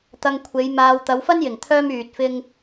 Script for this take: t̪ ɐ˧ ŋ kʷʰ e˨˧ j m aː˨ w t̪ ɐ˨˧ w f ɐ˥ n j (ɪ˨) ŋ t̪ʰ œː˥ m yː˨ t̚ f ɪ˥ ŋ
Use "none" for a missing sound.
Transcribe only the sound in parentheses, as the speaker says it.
ɪ˨˩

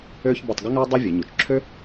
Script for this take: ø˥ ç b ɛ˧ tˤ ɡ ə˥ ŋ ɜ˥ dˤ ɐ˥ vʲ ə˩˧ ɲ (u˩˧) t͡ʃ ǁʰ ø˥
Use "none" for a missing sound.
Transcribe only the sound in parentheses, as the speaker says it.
u˩˧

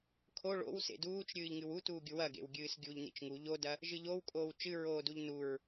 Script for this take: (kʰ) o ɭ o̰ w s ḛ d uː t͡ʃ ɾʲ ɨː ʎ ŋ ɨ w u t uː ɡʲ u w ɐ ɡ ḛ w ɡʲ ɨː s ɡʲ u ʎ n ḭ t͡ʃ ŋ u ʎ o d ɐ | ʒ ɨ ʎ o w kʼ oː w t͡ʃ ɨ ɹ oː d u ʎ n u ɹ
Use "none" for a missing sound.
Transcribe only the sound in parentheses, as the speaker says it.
kʰ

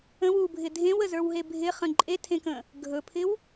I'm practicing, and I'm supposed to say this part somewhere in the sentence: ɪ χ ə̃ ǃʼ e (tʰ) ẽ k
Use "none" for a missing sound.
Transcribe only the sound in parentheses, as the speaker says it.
tʰ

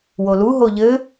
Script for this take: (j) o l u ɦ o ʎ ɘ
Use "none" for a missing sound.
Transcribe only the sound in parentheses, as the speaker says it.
w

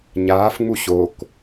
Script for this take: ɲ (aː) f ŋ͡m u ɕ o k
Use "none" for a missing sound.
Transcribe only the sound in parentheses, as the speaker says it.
aː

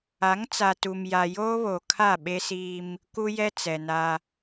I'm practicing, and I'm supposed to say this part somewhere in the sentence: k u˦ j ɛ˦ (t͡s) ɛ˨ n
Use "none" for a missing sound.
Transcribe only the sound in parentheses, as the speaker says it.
t͡s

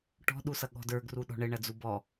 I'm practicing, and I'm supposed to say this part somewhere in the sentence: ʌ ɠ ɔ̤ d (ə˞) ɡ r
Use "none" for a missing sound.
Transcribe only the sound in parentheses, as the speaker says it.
ə˞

